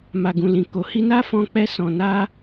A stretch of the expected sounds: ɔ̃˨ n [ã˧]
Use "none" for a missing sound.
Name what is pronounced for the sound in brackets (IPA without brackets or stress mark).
a˧